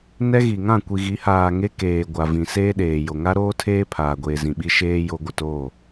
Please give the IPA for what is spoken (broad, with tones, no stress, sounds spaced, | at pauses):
n ɛ˦ ɣ i˨ ŋ ã˦˨ kʷ i˨ ɣ i˨˦ h aː˨ ŋ e˦ k eː˨ ɡʷ a˨ v ĩ˨ s eː˦ ɗ eː˨ j o˨ ŋ a˦ ɾ oː˦ tʰ eː˦ pʰ aː˨ ɡʷ eː˨ z ĩ˨ ɓ i˦ ʃ eː˦ j o˦ ɡʷ ɪ˨ t oː˦˨